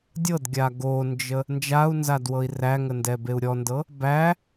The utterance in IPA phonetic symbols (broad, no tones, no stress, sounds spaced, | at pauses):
dʲ ɤ d ɡʲ a ɡ o n d͡ʒ ə | n d͡ʒ a u̯ n z a d w ɤ i̯ r æ ŋ ə n d ɛ b e u̯ ɾʲ ɔ n d ɤ | b æ